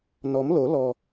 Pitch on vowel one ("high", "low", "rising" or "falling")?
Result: rising